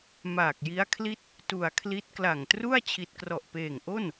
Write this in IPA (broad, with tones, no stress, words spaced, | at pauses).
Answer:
maː˨˩k̚ji˦˥a̯kʰli˥˩t̚ | tu˨˩a̯kʰli˦˥t̚ kla˨˩ŋtru˥˩a̯ t͡ɕʰi˨˩t̚krɔ˨˩ʔpeː˨˩ŋʔo˥˩n